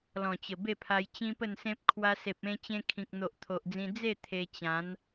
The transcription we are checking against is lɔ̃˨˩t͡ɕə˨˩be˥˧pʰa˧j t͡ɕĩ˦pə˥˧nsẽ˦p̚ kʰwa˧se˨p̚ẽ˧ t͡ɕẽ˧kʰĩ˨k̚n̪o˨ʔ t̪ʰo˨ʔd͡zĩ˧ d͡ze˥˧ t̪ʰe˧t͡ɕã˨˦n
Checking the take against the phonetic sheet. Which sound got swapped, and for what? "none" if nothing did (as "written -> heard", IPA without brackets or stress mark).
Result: none